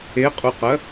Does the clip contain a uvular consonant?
yes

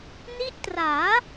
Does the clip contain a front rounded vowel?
no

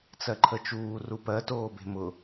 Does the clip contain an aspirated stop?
yes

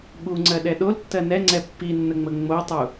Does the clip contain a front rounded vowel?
no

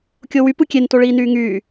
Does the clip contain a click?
no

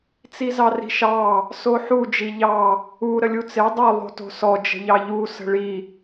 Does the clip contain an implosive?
no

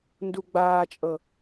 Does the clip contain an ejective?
yes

